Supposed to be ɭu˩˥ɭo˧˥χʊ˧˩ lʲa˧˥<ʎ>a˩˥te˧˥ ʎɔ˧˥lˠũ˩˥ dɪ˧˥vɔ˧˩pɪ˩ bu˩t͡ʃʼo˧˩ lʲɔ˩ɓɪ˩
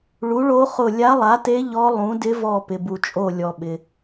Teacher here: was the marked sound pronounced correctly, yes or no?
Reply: no